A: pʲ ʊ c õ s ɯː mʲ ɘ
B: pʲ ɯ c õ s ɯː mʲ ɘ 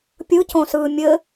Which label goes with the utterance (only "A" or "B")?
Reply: B